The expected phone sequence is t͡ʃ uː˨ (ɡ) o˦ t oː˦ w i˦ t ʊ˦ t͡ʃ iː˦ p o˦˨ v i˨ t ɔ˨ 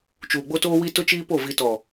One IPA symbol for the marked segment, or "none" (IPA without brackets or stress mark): ɡ͡b